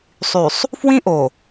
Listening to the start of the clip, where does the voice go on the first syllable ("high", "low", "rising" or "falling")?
low